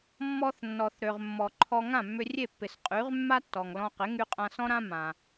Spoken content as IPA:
mː ɔ˧ θ nː ɔ˩ θ ɾ ø˩ ʁ mː ɔ˩ ǃʰ ɔ˧ ŋ ã˥˩ mː ʏ˧ rʲ e˥˩ pː ɪ˩ s qʼ y˩˥ ʁ mː a˥ tː ɔ˩ ŋ l ɔ̃˧ q ɪ˩˥ ŋ y˧ qʼ ã˧ s ɔ̃˥ ɾ ã˥ m ã˩

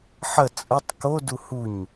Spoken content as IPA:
ħ ə t͡sʼ ə tˤ k o d u h u ɲ

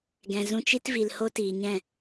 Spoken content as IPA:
ɡ ɛ̃˨ z ũ˧ t͡ʃ i˦ t v i˨ l h o˦ t iː˨ ɲ ɛ̃˦˨

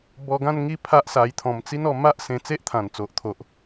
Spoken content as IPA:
b ɔ˧ ɡ ã˥˧ n ŋ i˥˧ pʰ a˦ ʔ s a˧ j t̪ʰ ɔ̃˧ m t͡s i˦ n ɔ˧ m a˦ ʔ s ẽ˧ t͡s e˦ ʔ t̪ʰ ã˨˩ n t͡s o˨ ʔ t̪ʰ o˨ ʔ

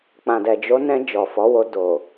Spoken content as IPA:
k͡p ã˨ d ɛ˨ d͡ʒ o˨˦ n ɛ̃˧ d͡ʒ ɔ˨ f ɔ˨˦ w o˧ d o˨

